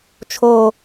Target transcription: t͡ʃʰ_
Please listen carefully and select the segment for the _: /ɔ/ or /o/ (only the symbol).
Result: o